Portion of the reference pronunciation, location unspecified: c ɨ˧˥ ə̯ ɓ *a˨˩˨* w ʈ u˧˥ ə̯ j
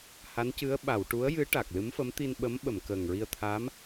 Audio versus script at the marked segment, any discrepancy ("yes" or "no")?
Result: no